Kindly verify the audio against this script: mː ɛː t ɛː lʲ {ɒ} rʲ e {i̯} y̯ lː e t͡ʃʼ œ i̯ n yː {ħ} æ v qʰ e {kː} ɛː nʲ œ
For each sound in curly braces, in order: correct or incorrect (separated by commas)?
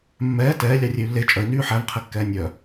incorrect, incorrect, correct, correct